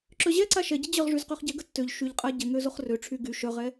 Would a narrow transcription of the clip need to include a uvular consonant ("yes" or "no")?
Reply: yes